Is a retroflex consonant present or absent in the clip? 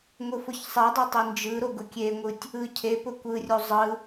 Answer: absent